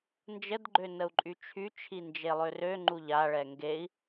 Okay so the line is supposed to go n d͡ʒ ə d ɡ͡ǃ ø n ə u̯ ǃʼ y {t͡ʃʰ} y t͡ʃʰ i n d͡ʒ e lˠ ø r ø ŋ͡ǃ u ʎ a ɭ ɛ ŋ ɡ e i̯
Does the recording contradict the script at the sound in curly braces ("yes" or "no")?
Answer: no